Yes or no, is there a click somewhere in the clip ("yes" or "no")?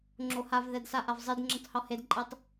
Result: yes